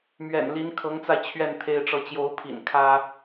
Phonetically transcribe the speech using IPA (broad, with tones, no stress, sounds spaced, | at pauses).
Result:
m ɥ ɛ̰˨˩ n l i˧˥ n kʰ ɤ˧˥ ŋ t͡s a˧ ɪ̯ t͡ɕʰ ɥ ɛ˥˩ n t̪ʰ e˥ ɪ̯ ʈ͡ʂ ɤ˥˩ t͡ɕ j o˧˥ ʊ̯ pʰ ḭ˨˩ n kʰ ä˥